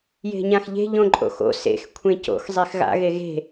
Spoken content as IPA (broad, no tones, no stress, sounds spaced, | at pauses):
j e̤ ɲ ã x ʎ e̤ ʎ õ ǃʼ o̰ x o̰ s ḛ x kʷʰ ẽ c o̰ x zˤ e x ɣ a̰ ɣ e ɣ e̤